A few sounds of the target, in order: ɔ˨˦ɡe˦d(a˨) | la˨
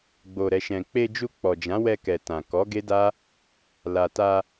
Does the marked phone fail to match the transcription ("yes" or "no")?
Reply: yes